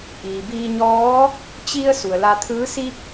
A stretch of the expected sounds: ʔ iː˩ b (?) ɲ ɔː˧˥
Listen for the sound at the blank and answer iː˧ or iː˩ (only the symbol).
iː˧